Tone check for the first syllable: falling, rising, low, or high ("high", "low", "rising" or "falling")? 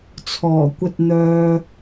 low